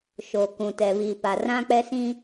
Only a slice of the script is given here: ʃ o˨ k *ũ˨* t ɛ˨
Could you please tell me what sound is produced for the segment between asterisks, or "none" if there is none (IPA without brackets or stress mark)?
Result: ũ˨